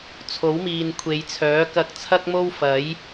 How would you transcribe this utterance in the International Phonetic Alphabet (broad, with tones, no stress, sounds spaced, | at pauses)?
t͡sʰ o˨˥ w m iː˨ n kʷʰ e˨˧ j t͡sʰ œː˨˥ k ɐ˧ k̚ t͡sʰ ɐ˥ k̚ m o˥ w f ɐ˨˥ j